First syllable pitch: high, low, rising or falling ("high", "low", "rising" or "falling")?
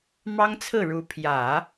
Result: high